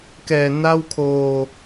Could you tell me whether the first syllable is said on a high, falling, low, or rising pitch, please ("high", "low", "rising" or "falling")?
low